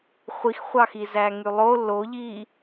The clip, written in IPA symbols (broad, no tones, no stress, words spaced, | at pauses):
χʷixχʷɑxi zæŋylˠo loʎi